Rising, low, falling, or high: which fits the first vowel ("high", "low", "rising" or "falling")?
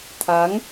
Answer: rising